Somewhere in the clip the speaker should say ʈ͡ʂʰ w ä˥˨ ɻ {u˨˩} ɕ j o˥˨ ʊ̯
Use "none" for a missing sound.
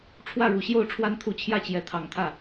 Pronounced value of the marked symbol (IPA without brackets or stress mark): u˨˩